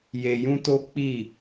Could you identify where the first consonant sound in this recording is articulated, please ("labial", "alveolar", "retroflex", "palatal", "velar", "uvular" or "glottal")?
palatal